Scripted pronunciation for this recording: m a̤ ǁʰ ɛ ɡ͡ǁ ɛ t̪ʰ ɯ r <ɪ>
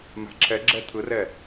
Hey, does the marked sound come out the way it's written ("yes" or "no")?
no